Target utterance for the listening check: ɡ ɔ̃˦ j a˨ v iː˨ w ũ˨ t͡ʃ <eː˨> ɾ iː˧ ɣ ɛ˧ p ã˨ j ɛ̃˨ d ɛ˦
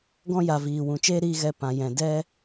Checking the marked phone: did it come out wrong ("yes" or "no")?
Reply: yes